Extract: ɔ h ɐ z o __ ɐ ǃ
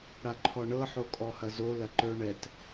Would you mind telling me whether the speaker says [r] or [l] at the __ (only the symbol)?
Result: l